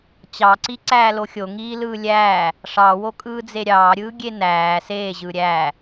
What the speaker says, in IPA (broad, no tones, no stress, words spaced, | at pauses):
t͡ɕɑǀi ǀæːloxʲo ŋiːlɯːlʲæː | ʂɑwokʼɯːd͡ze ɾʲɑːɾʲɯːɡʲe næː seː ʑɯːɾʲæː